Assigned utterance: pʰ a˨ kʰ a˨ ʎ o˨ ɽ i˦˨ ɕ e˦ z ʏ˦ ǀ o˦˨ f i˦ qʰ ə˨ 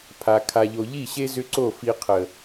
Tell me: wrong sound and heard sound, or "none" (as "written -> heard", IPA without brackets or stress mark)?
ɽ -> ʎ